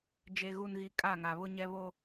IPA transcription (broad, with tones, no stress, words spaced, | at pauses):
d͡ʒe˨ɣu˨nɣi˨ kʼa˦˨ŋa˨βʊ˦ɲɛ˦ βo˦